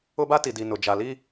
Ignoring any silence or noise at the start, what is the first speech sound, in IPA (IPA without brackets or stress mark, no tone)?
ʊ